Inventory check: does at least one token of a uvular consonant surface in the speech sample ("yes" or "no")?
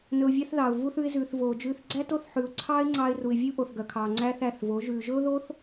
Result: no